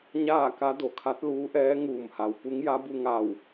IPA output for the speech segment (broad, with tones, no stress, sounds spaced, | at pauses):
ɲ aː˥˨ k a˧˥ d o˩ kʰ a˧˥ t̚ l uː˧˥ ʔ ɛː˧˥ ŋ uː˧˩ m h a˩ w p u˧˥ ŋ j a˧˥ b u˧ ŋ a˧˩ w